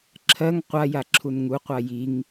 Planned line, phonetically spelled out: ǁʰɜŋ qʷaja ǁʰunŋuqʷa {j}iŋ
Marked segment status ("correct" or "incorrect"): correct